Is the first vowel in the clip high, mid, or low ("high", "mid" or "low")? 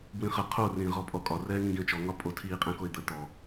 high